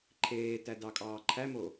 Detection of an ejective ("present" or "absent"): present